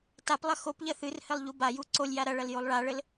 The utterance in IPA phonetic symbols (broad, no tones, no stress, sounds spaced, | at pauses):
t a p lˠ ɐ x o p ʎ ɐ θ ɨ r h ɘ lˠ ʎ u b a j u ǀ o lʲ j a ɾ ɐ ɭ ɐ l j o lˠ ɭ a ɭ ɘ l